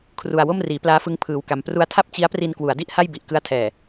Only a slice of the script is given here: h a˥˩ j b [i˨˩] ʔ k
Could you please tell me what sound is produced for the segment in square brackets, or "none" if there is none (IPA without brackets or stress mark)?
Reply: i˨˩